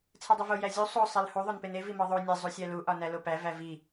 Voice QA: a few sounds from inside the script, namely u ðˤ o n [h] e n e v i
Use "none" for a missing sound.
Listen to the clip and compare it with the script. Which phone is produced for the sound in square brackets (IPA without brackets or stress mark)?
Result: p